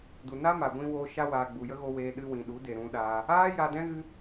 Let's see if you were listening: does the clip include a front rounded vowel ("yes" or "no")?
no